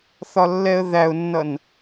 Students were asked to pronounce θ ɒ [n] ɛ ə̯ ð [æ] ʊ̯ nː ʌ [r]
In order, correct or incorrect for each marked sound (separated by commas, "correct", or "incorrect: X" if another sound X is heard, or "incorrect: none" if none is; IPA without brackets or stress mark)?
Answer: incorrect: lː, correct, incorrect: n